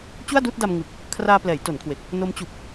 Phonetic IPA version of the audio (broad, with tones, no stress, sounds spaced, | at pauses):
t͡ɕ u˥˩ a̯ d uː˥˩ t̚ d a˧ m ŋ ɯ˨˩ k̚ | kʰ r aː˧ p l ɛː˩˦ j t o˩˦ n kʰ w e˨˩ k̚ | n o˦˥ m t͡ɕ u˨˩ k̚